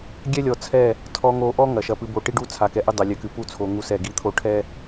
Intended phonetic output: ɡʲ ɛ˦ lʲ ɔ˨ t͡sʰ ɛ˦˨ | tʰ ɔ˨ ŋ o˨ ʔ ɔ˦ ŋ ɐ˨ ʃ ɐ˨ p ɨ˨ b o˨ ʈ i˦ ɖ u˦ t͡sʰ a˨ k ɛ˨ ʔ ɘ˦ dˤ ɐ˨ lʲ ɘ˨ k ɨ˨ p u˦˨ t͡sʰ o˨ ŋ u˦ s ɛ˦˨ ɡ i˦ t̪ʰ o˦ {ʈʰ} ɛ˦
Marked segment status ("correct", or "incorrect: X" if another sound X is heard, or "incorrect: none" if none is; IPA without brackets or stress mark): correct